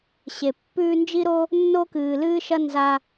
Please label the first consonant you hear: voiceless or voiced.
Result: voiceless